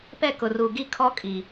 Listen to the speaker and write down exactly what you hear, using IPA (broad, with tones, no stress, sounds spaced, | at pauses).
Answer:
p ɛ˦˨ k ʊ˨ r uː˨ ɡ i˦ kʰ ɔ˦ kʼ i˨